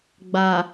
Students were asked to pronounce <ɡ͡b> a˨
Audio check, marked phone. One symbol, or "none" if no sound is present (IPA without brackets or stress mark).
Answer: ɡ͡b